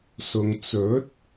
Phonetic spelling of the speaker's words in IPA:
s ʊ˨ ŋ t͡s ɵ˨˥ t̚

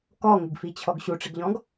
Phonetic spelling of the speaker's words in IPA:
k ɔ ŋ ɪ ɡ f i t͡ɕʰ ɔ ɡ ɕ u ʈ͡ʂ ɪ ɡ ʎ ɔ̃ ɡ

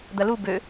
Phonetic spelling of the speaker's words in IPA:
d̪ ɐ l u b ø

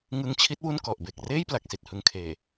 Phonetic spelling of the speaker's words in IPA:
ŋ ɯ˧ ŋ t͡ɕʰ i˦˥ t̚ w u˥˩ n k ɔ˨˩ ʔ b e˨˩ k̚ r eː˥˩ j p l a˨˩ k̚ s i˨˩ t̚ h ɯ˨˩ ŋ kʰ eː˨˩

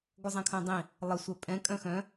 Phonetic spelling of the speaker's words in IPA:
ɡʷ ə zˤ ɛ̃ kʰ œ̃ dˤ ĩ | lˠ ə sʷ œ pʼ ɛ̃ kʼ œ̃ x œ̃

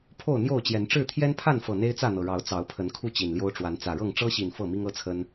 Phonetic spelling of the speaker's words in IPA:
pʰ o˥˨ ʊ̯ n̪ j o˥˨ ʊ̯ t͡ɕ j ɛ˨˦ n ʈ͡ʂ ɻ̩˥˨ t̪ʰ j ɛ˦ n pʰ a˥˨ n f ɤ˨˩ n̪ e˦ ɪ̯ t͡s ä˥˨ n̪ ɤ˩ ɻ ɑ˨˦ ʊ̯ t͡s ɑ˨˦ ʊ̯ pʰ ə˨˦ n kʰ u˥˨ t͡ɕ i˨˩ n l j o˦ ʊ̯ ʈ͡ʂ w a˨˦ n t͡s ä˨˩ ɻ ɤ˥˨ ŋ ʈ͡ʂ ɤ˦ ɕ i˨˩ n f ɤ˥˨ m i˦ ŋ ɤ˦ t͡sʰ ə˦ n

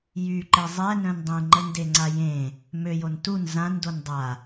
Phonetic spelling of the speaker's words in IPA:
j y ǃ e zˤ ɛ n œ̃ n dˤ ẽ ŋ͡ǃ ə n d e ŋ͡ǀ a j ẽ | m ø j o n t u n z ã n d o n dˤ a

